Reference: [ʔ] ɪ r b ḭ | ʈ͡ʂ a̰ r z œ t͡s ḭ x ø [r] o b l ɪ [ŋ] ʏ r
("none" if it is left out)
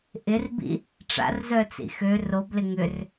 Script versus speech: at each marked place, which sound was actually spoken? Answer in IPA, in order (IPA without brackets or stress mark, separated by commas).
ʔ, r, ŋ